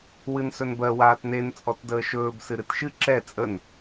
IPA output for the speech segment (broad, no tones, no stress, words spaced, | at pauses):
wɨnsɵnbɜ waːtnen t͡sʼɔtdəːʃɵːb sɨɾɨtʃɨ ǁɛ t͡sʼən